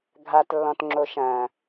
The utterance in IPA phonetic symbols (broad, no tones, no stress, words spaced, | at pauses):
ɡʱatlːɔ̃tŋ͡ǁo ʃɐ̃